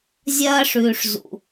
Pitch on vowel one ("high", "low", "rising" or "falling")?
high